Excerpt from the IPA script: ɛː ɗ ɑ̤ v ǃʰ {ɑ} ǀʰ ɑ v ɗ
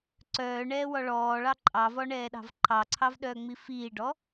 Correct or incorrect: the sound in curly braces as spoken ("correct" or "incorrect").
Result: correct